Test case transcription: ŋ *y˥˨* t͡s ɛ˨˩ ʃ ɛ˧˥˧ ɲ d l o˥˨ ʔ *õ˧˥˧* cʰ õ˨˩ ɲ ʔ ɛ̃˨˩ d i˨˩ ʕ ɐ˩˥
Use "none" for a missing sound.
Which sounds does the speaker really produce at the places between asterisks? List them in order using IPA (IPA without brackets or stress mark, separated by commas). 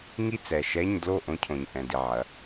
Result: i˥˨, õ˧˥˧